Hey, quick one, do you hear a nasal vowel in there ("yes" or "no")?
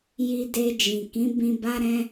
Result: yes